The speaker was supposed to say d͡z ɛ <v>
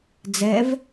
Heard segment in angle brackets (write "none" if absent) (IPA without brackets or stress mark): v